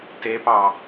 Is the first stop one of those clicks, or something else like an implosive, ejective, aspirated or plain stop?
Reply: plain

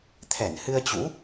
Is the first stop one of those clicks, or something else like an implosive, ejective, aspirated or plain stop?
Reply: aspirated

